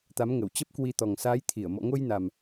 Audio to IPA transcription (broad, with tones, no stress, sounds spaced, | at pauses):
t̪ a˨˦ m ŋ ə˧˩ w t͡ɕ ə˦˥ p̚ k w i˧ t̪ ɔ˨˩ ŋ s aː˨˦ j t̪ʰ i˧˩ ə̯ m ɔ̰˧˨ ŋ o˧ j n a˨˩ m